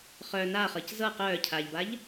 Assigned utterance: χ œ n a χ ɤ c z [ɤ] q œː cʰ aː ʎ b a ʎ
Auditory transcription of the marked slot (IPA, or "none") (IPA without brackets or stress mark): ɤ